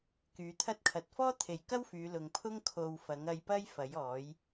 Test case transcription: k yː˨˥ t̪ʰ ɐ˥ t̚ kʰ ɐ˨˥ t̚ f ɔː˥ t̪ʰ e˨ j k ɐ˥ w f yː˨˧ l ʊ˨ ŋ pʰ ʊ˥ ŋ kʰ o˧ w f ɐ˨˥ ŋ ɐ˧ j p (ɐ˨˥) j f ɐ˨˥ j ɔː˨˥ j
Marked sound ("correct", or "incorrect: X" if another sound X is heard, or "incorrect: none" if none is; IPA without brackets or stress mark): incorrect: ɐ˥